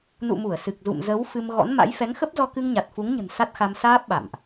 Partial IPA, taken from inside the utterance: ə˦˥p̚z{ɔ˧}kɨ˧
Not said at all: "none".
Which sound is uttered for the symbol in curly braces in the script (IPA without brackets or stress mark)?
ɔ˧